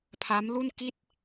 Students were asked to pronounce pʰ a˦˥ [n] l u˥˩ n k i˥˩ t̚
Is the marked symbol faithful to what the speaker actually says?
no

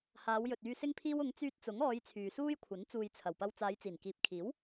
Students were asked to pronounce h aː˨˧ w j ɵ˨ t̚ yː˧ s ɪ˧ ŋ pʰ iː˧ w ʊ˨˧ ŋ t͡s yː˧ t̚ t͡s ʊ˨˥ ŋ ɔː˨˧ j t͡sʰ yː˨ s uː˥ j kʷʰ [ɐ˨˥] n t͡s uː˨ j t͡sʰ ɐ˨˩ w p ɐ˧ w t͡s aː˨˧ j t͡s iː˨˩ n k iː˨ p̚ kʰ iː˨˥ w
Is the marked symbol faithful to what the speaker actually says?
yes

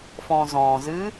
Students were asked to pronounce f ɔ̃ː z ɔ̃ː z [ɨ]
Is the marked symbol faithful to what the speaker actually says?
yes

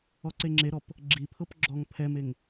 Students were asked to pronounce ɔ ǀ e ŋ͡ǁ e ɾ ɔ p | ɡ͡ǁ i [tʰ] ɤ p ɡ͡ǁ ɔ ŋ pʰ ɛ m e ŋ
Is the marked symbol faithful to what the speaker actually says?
no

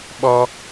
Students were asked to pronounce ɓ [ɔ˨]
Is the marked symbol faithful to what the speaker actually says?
no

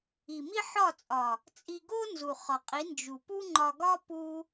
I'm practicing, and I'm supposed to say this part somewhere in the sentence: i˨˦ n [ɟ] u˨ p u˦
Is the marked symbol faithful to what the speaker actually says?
no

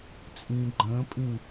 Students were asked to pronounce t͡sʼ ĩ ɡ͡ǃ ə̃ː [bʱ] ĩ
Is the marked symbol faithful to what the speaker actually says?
no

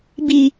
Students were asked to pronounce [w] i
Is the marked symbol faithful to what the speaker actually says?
no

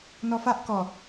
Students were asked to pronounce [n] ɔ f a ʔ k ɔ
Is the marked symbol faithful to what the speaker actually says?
yes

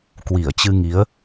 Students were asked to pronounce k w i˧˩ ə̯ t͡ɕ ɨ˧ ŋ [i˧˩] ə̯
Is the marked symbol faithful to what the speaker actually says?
no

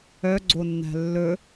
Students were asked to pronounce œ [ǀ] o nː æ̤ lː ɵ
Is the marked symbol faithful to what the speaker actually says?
no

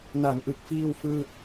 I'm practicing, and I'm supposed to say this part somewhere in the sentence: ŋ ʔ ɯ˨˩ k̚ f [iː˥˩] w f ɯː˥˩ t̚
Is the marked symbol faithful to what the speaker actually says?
yes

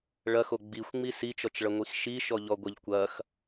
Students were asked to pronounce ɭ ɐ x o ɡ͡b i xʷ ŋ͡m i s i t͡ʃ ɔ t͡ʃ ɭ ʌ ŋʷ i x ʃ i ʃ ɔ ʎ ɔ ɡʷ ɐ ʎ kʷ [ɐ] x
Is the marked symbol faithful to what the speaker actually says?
yes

